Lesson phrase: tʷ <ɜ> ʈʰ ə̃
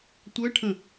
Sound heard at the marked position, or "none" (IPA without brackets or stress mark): ɜ